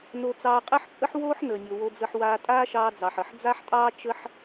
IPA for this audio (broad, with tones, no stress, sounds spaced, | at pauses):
n o˧ t͡s ɑː˧ qʼ əː˥ ħ t͡sʼ ə˥ ħ w oː˥ ħ n əː˩ nʲ o˩ w o˧ d͡z ə˧ ħ w aː˧ tʼ aː˥ ʃ ɑː˧ d͡z ɑ˩ ħ ə˩ ħ d͡z a˥ ħ tʼ ɑː˥ t͡ʃ ə˥ ħ